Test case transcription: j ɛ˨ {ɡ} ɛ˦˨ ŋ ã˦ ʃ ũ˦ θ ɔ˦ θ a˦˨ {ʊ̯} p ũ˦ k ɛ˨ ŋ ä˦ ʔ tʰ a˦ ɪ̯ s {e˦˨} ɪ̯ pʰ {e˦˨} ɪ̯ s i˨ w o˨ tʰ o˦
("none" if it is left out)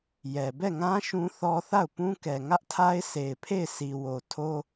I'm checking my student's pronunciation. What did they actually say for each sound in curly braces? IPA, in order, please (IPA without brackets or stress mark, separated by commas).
b, ʊ̯, e˨, e˦˨